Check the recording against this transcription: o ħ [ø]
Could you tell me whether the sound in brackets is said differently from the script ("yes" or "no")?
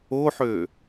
no